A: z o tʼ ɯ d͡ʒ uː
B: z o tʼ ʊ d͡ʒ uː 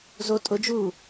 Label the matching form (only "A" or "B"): B